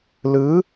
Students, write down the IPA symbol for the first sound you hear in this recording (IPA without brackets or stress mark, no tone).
l